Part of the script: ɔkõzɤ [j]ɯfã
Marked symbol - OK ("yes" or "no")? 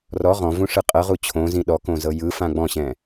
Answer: yes